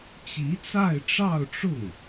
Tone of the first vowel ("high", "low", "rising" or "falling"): rising